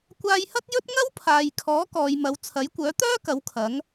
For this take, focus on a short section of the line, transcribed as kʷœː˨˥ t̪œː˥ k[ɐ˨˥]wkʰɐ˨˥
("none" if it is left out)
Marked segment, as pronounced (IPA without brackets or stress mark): ɐ˨˥